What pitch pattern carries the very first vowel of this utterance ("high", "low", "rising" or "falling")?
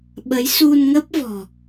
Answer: rising